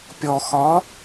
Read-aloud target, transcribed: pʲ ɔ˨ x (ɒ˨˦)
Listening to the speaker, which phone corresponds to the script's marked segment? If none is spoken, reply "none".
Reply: ɒ˨˦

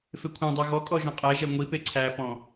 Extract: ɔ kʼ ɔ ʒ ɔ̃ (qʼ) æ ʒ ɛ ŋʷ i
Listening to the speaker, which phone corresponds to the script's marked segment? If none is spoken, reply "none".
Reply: qʼ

